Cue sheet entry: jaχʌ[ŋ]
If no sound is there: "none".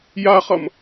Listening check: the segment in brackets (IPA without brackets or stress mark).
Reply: m